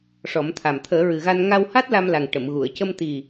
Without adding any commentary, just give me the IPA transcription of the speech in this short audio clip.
ʂɔ˨˩˦mt̪ʰa˨˩m t̪ʰəː˨˩˦ɹɨ˨˩ɣa˧n ŋa˧wha˦˥t̚ la˧mla˨˩ŋ ʈə˨˩˨m ɣu˨˩˨ə̯cə˧mt̪i˨˩

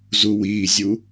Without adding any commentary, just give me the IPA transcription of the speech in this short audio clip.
zuwiːzʲu

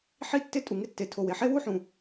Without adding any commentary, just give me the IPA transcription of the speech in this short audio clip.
ħi˥tːɪ˥tʼu˩ ŋɪ˥ tːe˩tʰo˩we˩ ħe˥wu˥ħũ˩

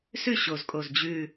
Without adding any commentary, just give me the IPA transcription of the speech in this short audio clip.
sʉ˥˨ ɕo˨˩zkʼo˨˩z d͡ʑʉ˨˩

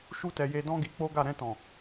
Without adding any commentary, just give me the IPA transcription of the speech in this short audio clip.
ʃu˦tɛ˧ je˧dɔ̃˦ ɡi˧k͡po˦ɡa˦˨ ɾɛ̃˧tɔ̃˨

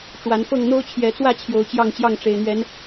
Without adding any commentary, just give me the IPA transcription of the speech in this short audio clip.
ʈ͡ʂwa˨˦n fɤ˥˨ŋ n̪o˦ʊ̯t͡ɕʰjɛ˨˦t͡swä˥˨ t͡ɕʰjo˨˦ʊ̯t͡ɕjɑ˥˨ŋt͡ɕjɑ˥˨ŋ ʈ͡ʂe˨˩ɪ̯n̪ɥɛ˨˦n

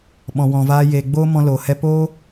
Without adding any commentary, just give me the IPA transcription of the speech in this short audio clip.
ɓɔ̃˨ wɔ̃˨vaː˧ jeː˨ɡ͡boː˦mɔ̃˧ loː˨hɛ˦ poː˦

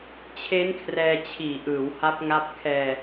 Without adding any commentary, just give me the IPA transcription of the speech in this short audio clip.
t͡ɕʰe˦˥nkʰrɛː˧t͡ɕʰiː˨˩ʔɯː˩˦w ha˦˥p̚ŋa˦˥p̚ kʰɛː˧

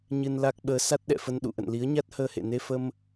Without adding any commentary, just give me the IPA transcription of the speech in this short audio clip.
ɲɨ˧nla˦˥k̚ɓəː˨˦ sa˦˥t̚ɗɛ̰˧˨fə˧n ɗṵ˧˨ʔə̰˧˨n li˨˦ə̯ɲa˦˥t̚həː˧hḛ˧˨ ne˧fə˧m

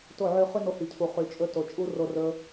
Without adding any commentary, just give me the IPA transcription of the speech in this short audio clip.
to˦˨ʕy˧χy˦ no˧hi˨cʰu˨ χy˨t͡ʃʼɵ˧ to˨t͡ʃʼu˦ro˧ rɵ˦

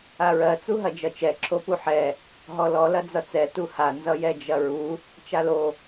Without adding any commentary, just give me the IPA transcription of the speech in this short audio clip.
aɹɜ t͡suɦɐd͡ʒʌt͡ʃɛ ǁʰopuħɛ | ɦɔlɔ lɐd͡zʌt͡sɛ tuha nzʌjɛd͡ʒɐɹu | t͡ʃalo

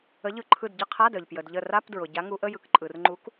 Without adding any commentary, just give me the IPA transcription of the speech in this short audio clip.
ə˨˦ʎɯ˧˩ǃʰɯ˧˩d ɟə˧˥˧qʰa˧˥˧dœ˩ʎ pjə˩dʎə˧˩ ra˧˥˧pdɹʊ˩ ɟa˨˦ŋu˨˦ʔə˧˥˧jɯ˨˦k ǃʼɯ˩rŋ͡ǃu˨˦k

